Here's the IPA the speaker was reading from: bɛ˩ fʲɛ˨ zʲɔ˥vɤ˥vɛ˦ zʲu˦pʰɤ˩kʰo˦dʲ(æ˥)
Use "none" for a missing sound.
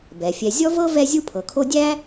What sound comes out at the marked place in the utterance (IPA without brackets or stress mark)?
æ˥